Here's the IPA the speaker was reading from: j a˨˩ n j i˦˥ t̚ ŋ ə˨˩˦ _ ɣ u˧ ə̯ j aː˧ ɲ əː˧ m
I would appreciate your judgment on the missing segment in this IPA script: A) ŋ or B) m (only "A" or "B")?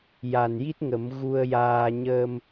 B